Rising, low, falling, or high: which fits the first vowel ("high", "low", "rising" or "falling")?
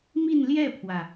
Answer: falling